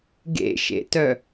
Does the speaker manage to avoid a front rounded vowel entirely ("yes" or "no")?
no